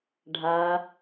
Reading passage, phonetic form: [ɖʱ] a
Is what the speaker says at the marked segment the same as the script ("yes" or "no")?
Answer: yes